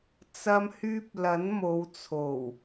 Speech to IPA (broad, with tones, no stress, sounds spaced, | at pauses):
t͡s ɐ˧ m h yː˧ p̚ l ɐ˨˥ n m o˨˧ w t͡sʰ o˨˩ w